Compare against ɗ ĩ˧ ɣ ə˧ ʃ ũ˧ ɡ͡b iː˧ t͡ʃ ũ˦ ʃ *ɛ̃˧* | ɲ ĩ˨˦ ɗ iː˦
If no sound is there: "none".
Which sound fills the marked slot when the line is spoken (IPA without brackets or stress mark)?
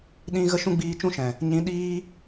ɛ̃˨